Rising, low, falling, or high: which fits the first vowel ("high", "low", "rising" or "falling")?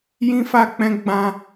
high